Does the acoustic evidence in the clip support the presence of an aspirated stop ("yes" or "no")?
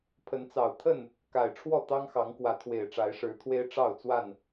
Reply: yes